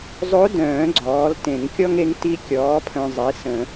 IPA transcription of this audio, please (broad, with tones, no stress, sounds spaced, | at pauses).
zˤ o˧˥ d œ̃ː˨˩˦ ɡ͡ǀ ɔː˩˥ l t ẽ˨˩˦ ŋ kʲ ɔ˥ ŋ e˧˥ ŋ t i˧˥ kʲ ɔː˩˥ pʰ œ̃˨ zˤ i˩˥ s ə̃˨˩˦